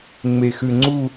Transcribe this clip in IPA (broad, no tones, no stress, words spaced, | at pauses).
ŋ͡mexʉŋ͡ǀu